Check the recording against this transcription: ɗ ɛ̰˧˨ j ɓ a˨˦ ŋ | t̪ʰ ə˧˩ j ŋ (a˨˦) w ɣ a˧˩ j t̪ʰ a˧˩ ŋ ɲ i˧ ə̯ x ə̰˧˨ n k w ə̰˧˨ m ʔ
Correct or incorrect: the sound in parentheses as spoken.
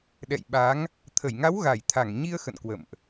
correct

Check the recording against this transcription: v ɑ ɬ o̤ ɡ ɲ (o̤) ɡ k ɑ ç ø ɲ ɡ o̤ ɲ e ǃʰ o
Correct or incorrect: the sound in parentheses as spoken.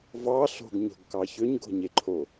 correct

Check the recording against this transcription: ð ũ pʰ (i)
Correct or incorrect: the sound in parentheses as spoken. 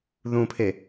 incorrect: e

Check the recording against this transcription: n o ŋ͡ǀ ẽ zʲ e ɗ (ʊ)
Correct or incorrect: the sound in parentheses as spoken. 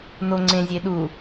incorrect: u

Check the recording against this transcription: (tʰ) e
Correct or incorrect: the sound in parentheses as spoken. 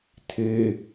correct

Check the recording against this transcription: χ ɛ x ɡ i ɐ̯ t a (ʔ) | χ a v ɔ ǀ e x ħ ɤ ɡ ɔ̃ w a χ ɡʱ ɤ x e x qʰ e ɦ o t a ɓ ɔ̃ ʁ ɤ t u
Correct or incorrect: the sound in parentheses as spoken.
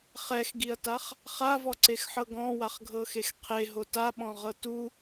incorrect: χ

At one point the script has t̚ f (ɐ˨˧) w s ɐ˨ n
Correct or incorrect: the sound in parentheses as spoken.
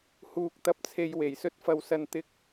incorrect: ɐ˨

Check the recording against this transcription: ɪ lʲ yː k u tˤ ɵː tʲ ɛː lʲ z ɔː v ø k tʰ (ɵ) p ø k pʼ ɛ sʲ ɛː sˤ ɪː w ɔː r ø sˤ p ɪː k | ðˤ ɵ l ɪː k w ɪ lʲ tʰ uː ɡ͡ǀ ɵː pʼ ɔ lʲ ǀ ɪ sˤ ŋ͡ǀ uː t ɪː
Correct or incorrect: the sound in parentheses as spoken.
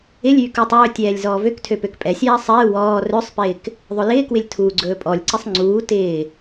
incorrect: ø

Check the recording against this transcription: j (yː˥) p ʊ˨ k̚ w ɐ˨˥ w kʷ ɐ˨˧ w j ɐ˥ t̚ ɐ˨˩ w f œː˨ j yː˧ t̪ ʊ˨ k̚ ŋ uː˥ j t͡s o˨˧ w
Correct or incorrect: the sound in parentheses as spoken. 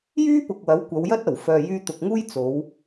correct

